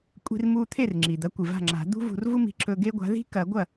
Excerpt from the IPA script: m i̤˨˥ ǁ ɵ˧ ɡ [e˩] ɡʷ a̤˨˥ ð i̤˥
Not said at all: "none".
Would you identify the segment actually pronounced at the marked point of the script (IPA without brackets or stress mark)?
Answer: e˥